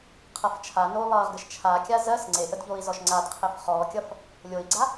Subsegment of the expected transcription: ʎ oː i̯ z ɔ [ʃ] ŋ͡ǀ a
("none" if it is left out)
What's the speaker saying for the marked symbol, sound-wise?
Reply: ʃ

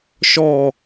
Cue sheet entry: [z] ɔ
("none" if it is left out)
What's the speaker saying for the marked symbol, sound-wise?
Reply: ʃ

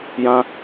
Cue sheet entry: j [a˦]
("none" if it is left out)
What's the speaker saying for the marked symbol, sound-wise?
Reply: ã˦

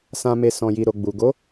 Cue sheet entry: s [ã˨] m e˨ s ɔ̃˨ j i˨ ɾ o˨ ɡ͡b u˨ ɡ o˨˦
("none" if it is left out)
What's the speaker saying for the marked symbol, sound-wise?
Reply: ã˨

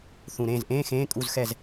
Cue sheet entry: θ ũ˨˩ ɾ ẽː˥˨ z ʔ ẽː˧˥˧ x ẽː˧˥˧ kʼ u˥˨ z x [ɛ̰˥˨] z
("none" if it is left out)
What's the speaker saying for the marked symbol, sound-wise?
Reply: ɛ˥˨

